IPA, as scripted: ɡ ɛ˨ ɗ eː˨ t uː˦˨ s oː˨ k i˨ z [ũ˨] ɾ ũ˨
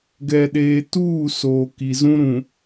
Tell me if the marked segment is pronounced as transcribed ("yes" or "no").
no